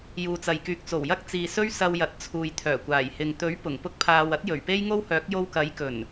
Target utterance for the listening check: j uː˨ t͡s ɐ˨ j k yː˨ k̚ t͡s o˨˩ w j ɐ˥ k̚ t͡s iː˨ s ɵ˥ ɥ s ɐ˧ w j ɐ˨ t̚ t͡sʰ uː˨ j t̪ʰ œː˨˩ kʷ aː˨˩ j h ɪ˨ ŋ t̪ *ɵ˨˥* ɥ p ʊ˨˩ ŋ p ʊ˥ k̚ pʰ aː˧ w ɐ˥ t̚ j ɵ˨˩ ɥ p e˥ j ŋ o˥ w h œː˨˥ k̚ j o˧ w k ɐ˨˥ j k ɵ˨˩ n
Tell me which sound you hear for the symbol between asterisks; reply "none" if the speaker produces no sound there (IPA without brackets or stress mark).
ɵ˨˥